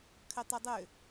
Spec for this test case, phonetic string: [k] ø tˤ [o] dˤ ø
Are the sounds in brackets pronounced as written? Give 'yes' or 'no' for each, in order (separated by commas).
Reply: no, no